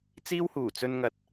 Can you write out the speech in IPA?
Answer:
t͡s iː˥ w h uː˨˩ t͡s ɵ˧ n ŋ ɐ˨ t̚

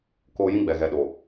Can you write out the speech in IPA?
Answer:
k oː˨ j ĩ˦ ɡ͡b ɛ˨ ɣ ɛ˨ ɗ o˨

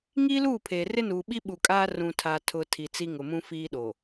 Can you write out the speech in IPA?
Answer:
ŋ iː˦ l uː˦˨ pʰ eː˨ r ɪ˦ n uː˨ ɓ i˦ ɓ u˨ kʼ aː˦ r ũ˨ tʰ a˨ tʰ ʊ˨ tʰ i˨ t͡s i˦ ŋ ʊ˨ m ũ˦ f iː˦ ɗ o˨

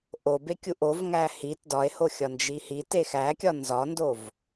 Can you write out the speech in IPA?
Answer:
ʔ o b e kʲ u ʔ o v ŋ æ h i t d ɒ e̯ h o xʲ ɒ n d͡ʒ i h i t e x æ kʲ ɒ n z ɒ n d o v

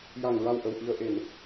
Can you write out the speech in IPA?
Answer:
j a˨˩ ŋ ɹ a˨˩ w ʔ ə˨˩ w ʔ i˨˩ ə̯ ʔ e˨˩˨ n

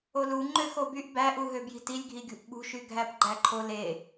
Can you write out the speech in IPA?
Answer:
o l u ŋ͡ǃ ø x o b y ʔ b æ ʔ u ɦ ø b j i̤ t i lʲ ɡʱ i ɡʲ ṳ ʔ ɓ ṳ ʃ y ɡʱ æ p ɡ͡ǃ æ ǃʰ o l e

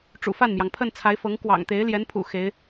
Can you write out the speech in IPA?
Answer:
ʈ͡ʂ ṵ˨˩ f a˥˩ n m j ɑ˩ ŋ pʰ ə˥˩ n t͡sʰ a˧˥ ɪ̯ f ɤ˧˥ ŋ k w ɑ̰˨˩ ŋ t̪ e˧˥ ɪ̯ l j ɛ˧˥ n pʰ ṵ˨˩ x e˧˥ ɪ̯

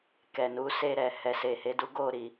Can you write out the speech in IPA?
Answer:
k ɛ˨ n u˨˦ s e˧ ɾ ɛ˨ h ɛ˨ s e˨ h e˨˦ d u˦ ɡ o˦˨ ɾ i˨

